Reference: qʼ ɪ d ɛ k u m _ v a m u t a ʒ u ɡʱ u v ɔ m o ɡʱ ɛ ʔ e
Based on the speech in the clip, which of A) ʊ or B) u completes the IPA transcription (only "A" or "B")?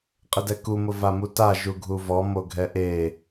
A